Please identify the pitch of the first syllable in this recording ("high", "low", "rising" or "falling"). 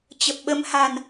low